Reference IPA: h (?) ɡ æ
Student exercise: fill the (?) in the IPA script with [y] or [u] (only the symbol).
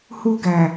u